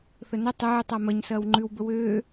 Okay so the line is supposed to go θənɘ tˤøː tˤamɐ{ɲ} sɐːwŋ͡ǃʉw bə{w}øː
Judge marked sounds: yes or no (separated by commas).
yes, yes